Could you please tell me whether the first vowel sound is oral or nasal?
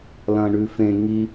nasal